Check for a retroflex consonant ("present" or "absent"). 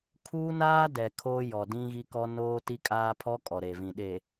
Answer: absent